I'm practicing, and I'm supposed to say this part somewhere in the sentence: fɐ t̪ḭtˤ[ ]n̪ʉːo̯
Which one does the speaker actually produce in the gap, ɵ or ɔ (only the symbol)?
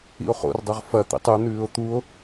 ɵ